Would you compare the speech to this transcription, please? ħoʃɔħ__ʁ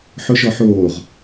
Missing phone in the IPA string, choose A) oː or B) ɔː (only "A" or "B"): A